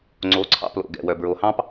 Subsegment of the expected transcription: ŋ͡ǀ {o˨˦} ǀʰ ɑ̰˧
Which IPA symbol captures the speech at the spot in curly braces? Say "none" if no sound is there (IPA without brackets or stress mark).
o˨˦